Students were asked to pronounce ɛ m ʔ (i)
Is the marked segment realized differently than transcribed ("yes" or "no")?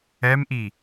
no